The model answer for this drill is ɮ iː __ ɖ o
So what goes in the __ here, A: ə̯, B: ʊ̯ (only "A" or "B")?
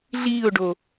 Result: B